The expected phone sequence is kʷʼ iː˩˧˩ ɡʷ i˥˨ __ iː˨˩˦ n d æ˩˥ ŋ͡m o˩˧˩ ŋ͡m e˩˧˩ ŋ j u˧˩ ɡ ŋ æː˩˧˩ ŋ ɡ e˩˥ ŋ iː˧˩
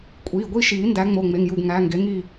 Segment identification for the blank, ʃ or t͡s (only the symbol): ʃ